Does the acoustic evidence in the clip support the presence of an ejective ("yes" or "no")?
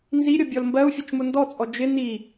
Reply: yes